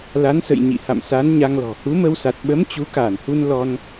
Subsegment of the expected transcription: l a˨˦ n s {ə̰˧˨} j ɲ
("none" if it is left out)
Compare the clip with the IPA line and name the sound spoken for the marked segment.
ə̰˧˨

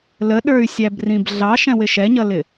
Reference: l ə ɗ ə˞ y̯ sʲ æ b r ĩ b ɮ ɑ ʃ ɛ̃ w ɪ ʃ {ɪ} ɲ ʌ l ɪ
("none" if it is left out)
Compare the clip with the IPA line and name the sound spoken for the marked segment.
ɛ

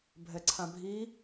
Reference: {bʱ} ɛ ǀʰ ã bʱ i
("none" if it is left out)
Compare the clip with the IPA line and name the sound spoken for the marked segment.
bʱ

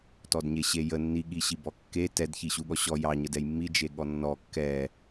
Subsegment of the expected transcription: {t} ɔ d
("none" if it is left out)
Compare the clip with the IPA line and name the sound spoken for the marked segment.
t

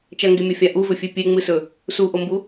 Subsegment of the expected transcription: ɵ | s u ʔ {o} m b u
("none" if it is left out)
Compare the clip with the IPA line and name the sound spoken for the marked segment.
o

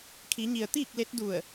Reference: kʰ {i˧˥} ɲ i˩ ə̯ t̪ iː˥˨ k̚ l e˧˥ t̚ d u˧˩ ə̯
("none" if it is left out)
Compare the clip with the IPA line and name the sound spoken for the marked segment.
i˩˧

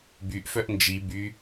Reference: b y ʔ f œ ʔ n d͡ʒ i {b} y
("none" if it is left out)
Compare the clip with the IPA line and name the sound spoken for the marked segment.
b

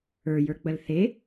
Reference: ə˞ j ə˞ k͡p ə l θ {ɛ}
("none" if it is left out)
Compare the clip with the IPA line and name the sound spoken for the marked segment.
e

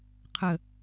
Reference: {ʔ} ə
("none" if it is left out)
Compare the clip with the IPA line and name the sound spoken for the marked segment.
qʰ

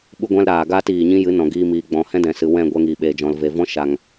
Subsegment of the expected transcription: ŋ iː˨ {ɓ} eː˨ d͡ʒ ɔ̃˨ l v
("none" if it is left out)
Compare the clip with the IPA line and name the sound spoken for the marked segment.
ɓ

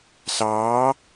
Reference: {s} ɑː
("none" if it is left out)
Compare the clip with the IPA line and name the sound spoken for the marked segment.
s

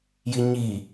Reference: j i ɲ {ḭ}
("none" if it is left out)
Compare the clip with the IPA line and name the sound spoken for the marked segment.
i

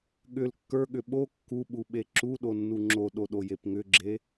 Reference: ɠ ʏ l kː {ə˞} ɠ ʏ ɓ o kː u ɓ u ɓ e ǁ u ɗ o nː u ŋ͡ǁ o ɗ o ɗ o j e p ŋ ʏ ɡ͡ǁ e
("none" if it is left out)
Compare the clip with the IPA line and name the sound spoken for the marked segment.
ə˞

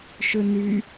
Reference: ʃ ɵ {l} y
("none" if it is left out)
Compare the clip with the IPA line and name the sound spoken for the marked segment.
n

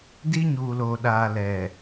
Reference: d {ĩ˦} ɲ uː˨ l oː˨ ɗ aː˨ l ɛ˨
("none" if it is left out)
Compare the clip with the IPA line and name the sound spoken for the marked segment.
i˦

